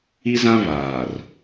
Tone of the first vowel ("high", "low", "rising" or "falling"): high